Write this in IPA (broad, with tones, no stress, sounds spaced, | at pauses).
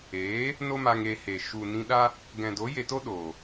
eː˨˦ | n o˦ m a˧ ŋ e˧ h e˨ ʃ u˨ n ĩ˧ ɗ a˦ | ɡ ɛ̃˨ d o˨˦ j e˧ t o˦ ɗ oː˨